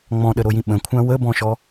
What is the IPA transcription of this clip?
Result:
ŋ͡mɔ̃ɗəɾojĩ ɓə̃kʷʰã wəbɔ̃ʃɔ

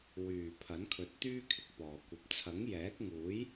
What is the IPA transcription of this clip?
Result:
wyː˨˩ pʰɐ˨˥nkʰɵ˨˥t̚t̪yː˥kʰɪ˧k̚ pɔː˨kʷɐ˧p̚ t͡sʰɐ˨˥ŋjɛː˨˥k̚ŋuː˨˥j

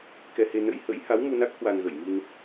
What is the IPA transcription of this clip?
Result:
kɛ˧he˧ nə̰˧˥jhə̰˧˥j ha˨˦wmu˧na˦˥k̚ hwa˧nɣə˧˩j mi˧n

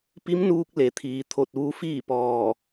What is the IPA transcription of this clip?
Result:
pi˧˥mnuː˧k̚ le˩˧t̪ʰiː˩ t̪ʰo˧˩t̚ʋu˧ fiː˥˨pɔː˧˩

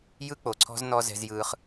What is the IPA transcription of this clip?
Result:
jɯ˦k͡po˨ǀʰɔ̤˦znɔ˦ zɛ̤˦zjɯː˦χ

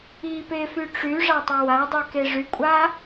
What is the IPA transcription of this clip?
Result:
ipefy ʈ͡ʂyʐatˤʌ wadˤike ʐykʷʼa

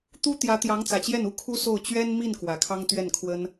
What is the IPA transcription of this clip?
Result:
t̪u˥t̪jä˧˥ t̪jɑ˧˥ŋt͡sä˨˩t͡ɕjɛ˥˩n u˥kʰu˥ so˥˩ʊ̯ t͡ɕɥɛ˥nmi˥˩n kwä˨˩kʰɑ˥ŋt̪ɥɛ˥˩nkʰwə˥n

